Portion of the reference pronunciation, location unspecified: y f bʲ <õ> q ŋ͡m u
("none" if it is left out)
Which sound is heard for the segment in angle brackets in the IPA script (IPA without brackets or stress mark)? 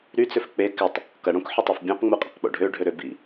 õ